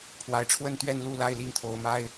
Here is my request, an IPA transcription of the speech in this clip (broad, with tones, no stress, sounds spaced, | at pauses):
pʰ w a˨˦ ɪ̯ ʈ͡ʂʰ w ə˥˨ n t̪ ɥ ɛ˥˨ n l u˥˨ l a˥˨ ɪ̯ l i˥˨ ŋ t̪ʰ o˨˦ ʊ̯ m a˦ ɪ̯